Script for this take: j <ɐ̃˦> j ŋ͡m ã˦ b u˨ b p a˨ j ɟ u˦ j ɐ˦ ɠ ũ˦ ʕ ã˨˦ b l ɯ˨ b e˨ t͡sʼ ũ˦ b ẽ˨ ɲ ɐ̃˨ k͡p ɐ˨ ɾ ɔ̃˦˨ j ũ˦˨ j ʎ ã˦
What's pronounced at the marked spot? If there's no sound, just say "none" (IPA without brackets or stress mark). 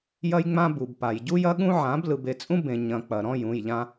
ɐ˦